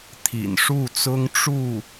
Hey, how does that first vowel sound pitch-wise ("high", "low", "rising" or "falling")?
low